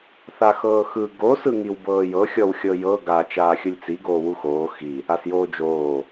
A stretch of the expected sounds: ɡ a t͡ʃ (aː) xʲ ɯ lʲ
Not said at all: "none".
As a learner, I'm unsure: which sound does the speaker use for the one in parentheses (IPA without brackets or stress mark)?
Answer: aː